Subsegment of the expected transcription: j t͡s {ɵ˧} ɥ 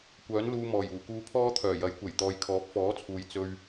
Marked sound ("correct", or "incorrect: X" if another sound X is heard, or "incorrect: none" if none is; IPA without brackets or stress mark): correct